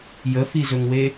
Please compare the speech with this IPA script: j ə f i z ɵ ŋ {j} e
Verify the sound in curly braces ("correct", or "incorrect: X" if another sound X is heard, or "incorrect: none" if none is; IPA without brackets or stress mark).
incorrect: w